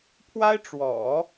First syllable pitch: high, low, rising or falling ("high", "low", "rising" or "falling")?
high